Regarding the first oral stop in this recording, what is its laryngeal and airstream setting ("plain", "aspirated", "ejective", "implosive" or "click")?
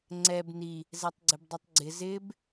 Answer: click